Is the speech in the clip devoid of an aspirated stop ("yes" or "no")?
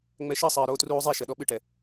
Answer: yes